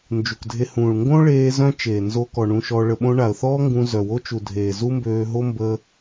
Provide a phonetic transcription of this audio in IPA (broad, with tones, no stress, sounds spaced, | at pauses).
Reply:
n d͡ʒ u˨ k dʱ e˧ h ũː˨ ɭ ŋ ɡ õ˦ ɭ eː˧ z œ̃˦ t͡ʃ eː˨ n z o˧ k ɔ˨ ɳ ũ˧ ʃ ɔ˧ ɭ ə˧ ɓ õ˦ ɳ a˨ ə̯ θ ɔː˦ ŋ ɡ ũ˧ z œ˨ w o˦ t͡ʃ u˨ dʱ eː˨ z u˦ m b øː˧ ɦ o˦ m b ə˧